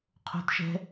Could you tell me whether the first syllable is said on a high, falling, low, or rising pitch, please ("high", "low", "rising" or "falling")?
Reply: high